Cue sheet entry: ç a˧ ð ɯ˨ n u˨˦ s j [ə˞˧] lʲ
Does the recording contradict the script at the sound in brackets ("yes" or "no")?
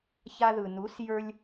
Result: no